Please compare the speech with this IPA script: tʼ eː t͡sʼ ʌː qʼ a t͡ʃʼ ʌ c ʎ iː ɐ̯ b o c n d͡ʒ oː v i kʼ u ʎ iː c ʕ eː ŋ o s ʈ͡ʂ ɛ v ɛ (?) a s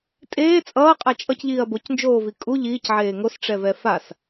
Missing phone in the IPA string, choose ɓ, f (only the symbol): f